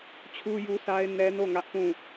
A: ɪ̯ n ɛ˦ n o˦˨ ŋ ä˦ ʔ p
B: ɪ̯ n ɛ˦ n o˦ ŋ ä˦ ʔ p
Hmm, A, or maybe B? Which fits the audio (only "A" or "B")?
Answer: A